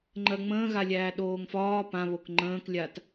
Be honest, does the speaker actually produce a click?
yes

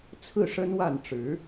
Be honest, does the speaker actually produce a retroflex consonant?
yes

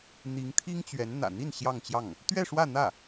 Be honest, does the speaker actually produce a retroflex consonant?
yes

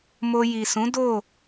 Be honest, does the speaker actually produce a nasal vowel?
yes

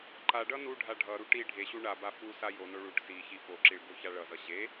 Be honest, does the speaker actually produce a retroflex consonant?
yes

